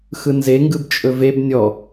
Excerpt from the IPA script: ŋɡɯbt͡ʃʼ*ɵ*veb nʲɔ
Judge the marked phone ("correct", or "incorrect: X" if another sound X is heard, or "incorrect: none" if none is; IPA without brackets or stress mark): correct